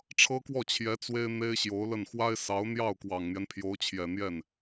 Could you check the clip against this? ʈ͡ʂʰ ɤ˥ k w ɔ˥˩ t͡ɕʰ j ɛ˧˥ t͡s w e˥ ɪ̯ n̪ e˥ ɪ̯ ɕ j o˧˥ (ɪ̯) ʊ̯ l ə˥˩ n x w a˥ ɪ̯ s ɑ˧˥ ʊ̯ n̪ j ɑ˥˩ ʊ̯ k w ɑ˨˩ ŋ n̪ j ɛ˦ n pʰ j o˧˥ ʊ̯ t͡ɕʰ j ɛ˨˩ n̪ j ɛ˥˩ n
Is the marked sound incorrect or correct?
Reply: incorrect